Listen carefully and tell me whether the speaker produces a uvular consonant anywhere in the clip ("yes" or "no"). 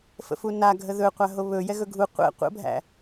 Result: yes